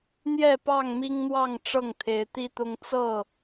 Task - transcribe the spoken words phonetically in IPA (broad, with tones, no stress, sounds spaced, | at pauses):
n̪ j ɛ˥˨ p ɑ˥˨ ŋ m i˦ ŋ n̪ w ɑ˥˨ ŋ ʈ͡ʂ ɤ˥˨ ŋ t̪ʰ e˨˦ ɪ̯ t̪ i˦ t̪ ʊ˦ ŋ t͡s ɤ˥˨